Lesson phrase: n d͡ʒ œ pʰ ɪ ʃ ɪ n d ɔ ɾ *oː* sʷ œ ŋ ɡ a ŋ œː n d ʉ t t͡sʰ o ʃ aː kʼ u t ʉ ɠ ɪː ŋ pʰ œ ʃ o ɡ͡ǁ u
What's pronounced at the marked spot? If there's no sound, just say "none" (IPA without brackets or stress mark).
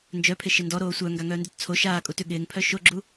oː